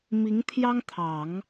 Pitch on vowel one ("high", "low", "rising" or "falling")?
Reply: rising